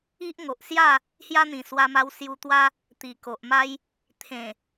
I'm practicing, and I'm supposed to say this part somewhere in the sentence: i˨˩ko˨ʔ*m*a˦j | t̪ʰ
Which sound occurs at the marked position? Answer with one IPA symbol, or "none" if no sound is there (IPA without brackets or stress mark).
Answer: m